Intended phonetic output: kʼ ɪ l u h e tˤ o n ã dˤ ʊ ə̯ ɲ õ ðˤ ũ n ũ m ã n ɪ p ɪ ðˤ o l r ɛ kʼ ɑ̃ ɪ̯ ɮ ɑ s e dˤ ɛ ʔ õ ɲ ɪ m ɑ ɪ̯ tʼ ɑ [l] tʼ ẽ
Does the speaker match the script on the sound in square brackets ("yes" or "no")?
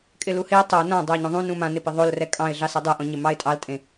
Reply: yes